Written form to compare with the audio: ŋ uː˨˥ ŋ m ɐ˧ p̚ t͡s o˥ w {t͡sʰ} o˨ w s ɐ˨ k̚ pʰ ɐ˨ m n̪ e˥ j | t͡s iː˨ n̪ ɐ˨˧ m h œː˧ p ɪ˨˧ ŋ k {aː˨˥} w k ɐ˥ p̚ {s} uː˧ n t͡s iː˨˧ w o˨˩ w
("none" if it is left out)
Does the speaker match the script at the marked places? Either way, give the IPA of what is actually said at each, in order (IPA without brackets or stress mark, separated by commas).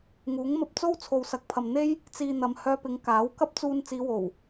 t͡sʰ, aː˨˥, t͡s